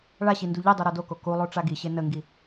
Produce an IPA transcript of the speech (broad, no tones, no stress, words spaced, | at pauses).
ɭaɕi nduʎidˤu ɾodoko kulˠo ʈ͡ʂaɡiɕe nəŋɡi